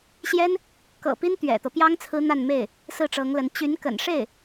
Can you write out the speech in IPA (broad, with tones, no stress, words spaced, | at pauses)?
ɕjɛ˥n | kɤ̰˨˩pi˥n t̪ɥɛ̰˨˩t̪ɤ˦ pjɑ˥ŋ t͡sʰɹ̩˥n̪a˥˧nme˥˩ɪ̯ | sɹ̩˥˩ʈ͡ʂɤ˧˥ŋlə˧˥n t͡ɕy˧˥nkə̰˨˩n ʂe˥˩ɪ̯